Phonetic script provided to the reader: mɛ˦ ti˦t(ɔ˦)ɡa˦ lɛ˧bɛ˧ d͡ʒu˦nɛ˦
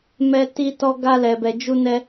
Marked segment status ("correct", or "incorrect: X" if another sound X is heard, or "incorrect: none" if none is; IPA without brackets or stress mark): correct